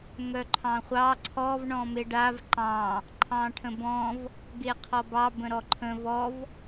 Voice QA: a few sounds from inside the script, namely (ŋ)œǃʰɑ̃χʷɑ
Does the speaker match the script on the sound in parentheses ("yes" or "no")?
yes